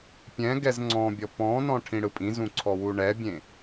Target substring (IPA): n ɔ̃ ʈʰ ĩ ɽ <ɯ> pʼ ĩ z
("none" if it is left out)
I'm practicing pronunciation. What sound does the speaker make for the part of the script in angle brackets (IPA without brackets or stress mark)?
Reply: ɯ